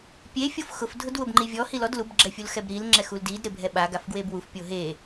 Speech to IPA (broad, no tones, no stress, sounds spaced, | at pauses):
pʲ e fʲ o f x ʊ f dʱ ʊ d w ʊ b ŋ͡ǃ i vʲ ɔ h i l ɔ d l u b ɡ͡ǁ ɛ fʲ u l x ɛ b ɾ i l ŋ͡ǁ ɛ x u l d i d ɾ ɪ bʱ ɛ ɓ a ɡ a f ɡ w e b w u f pʲ o ɦ e